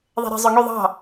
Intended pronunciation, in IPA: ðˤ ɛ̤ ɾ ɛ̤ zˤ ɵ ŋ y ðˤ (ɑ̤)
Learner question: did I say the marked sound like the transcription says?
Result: yes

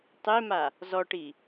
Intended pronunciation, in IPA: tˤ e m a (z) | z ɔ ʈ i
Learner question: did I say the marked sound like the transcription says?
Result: no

